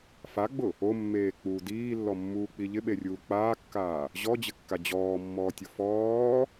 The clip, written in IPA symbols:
f a ɡ͡b ʊ | o mː eː k͡p uː d iː lː ɔ mː uː k͡p i ʎ ɪ ɓ e rʲ uː k͡p aː kː aː | ʑ ɔ d͡ʑ ɪ kː a d͡ʑ ɔː mː ɔː tʲ ʊ f ɔː

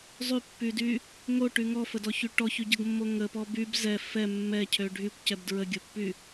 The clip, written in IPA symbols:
zˤ y pː y d y | ŋ o ʈ y ŋ ɔ f ə d ɔ ç y ʈ ɔ ç y ɟ ə ɡ mː o ŋ ə p ɔ b y b z ɛ f ɛ mː ɛ cʰ ø ɖʱ y kʷ c ɛ b d ɹ ə ɡʲ o pː y

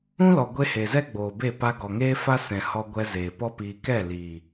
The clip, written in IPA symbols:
ũ˦ l ɔ˨ ɡʷ e˧ h e˨ z ɛ˦ ɡ͡b oː˨ b e˦˨ p a˧ ɡ ɔ˨ ŋ eː˦ f a˦ s ɛ̃˨ h ɔ˧ ɡʷ ɛ˧ z eː˨ p ɔ˦ p iː˧ k ɛ˦˨ l iː˨

